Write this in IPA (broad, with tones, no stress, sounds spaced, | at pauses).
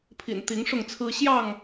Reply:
pʰ ḭ˨˩ n t̪ i˨˦ ŋ ʂ ʊ˥˨ ŋ t͡sʰ ɹ̩˦ ɕ j ɑ˥˨ ŋ